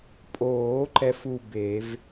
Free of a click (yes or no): no